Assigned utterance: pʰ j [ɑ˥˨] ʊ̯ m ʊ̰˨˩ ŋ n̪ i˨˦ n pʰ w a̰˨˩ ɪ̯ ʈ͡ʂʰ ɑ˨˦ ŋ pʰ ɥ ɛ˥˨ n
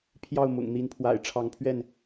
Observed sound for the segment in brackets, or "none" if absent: ɑ˥˨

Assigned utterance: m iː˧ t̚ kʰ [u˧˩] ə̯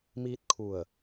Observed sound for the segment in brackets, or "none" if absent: u˧˩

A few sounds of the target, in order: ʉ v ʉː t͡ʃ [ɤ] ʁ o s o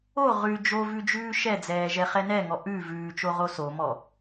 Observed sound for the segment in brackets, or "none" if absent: o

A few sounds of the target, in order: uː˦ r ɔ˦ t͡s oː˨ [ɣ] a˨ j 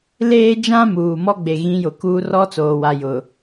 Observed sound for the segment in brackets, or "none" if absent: w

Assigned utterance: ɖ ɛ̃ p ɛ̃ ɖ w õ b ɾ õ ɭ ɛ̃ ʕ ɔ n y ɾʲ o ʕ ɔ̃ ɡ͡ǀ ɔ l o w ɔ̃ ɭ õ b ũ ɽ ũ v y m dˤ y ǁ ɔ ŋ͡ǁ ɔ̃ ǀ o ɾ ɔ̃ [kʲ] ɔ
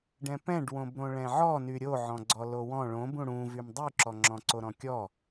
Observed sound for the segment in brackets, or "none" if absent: kʲ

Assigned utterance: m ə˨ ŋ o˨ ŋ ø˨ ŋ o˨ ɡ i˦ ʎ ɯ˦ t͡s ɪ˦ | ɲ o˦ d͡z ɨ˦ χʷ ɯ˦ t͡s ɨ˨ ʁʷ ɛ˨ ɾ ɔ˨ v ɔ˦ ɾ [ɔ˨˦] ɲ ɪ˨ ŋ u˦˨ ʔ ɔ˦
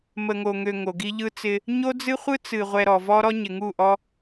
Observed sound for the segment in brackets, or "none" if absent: ɔ˦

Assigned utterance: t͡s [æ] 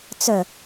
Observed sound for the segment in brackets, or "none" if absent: œ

